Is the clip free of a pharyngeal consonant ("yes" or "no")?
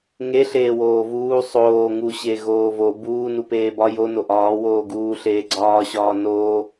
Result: yes